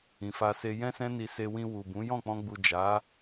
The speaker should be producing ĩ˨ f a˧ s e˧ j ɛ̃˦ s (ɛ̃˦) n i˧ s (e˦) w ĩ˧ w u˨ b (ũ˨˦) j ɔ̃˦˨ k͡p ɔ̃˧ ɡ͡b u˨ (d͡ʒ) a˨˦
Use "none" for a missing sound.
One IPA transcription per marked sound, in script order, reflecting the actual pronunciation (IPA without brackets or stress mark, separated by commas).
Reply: ɛ̃˦, e˧, ũ˨˦, d͡ʒ